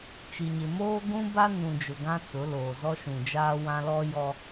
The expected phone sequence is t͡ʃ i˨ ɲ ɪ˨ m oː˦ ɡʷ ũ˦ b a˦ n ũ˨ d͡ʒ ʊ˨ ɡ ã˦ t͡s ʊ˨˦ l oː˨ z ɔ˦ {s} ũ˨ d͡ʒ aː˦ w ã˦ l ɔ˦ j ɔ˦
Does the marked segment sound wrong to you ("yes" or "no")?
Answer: yes